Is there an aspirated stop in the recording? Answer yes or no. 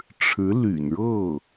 yes